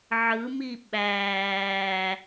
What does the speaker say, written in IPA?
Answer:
ʕɯmi ɓæː

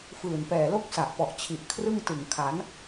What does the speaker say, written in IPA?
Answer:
fɯː˨˩n pɛː˨˩lo˥˩k̚ sa˨˩ʔpɔ˨˩ʔ t͡ɕʰi˨˩ʔ kʰrɯ˥˩ŋtɯ˨˩ŋ kʰa˩˦n

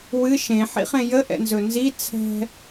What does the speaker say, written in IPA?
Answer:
wɨ ʃẽħḭχẽ jəʔɛ̰nzɵ nzi t͡sʰɛ̤

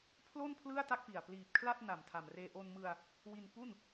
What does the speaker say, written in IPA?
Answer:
pʰlo˥˩n pʰlɯ˥˩a̯ta˥˩k̚pi˨˩a̯ pliː˨˩p̚ kʰla˥˩t̚na˨˩m tʰa˨˩mreː˧ ʔo˧nmɯ˧a̯ | wi˧n pu˥˩n

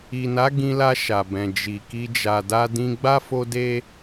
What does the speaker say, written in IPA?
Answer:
i˨na˨˦ ɡĩ˧la˧ ʃa˨bɛ̃˨ d͡ʒi˨ki˧ d͡ʒa˨da˧ dĩ˧ɡ͡ba˦ fo˦de˦

